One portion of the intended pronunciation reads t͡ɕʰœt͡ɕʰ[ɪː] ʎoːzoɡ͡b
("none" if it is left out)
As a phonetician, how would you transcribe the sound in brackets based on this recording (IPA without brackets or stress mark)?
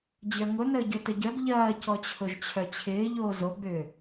ɪː